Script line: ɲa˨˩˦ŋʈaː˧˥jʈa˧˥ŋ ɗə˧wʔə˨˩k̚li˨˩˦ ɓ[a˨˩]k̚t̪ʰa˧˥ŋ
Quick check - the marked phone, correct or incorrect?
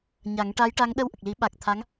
correct